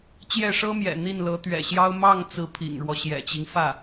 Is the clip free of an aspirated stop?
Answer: no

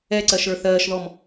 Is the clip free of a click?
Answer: no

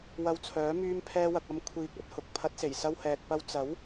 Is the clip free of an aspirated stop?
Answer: no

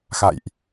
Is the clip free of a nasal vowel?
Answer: yes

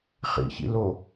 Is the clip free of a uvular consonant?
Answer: no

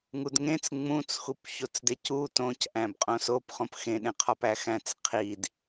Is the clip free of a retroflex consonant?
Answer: yes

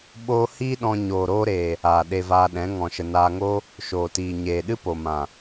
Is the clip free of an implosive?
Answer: no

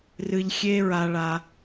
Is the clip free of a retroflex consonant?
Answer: no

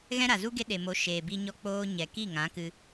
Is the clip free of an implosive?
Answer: no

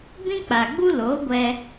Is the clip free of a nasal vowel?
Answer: no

